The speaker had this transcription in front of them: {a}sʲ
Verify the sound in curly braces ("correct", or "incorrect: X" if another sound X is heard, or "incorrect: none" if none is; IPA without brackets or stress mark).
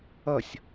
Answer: incorrect: ʌ